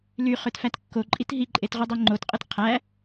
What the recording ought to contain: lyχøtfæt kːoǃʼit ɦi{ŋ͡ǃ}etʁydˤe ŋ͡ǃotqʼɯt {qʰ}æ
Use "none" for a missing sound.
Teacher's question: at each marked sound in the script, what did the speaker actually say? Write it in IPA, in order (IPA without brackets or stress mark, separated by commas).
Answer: ǃʼ, qʰ